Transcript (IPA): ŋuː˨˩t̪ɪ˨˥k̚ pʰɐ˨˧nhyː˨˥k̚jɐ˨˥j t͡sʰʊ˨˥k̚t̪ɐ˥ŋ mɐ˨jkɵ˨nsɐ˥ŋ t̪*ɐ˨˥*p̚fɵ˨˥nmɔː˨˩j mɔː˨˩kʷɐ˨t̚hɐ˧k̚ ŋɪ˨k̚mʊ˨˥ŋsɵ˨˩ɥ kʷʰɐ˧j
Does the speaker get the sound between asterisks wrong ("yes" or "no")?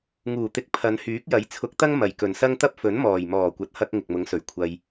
yes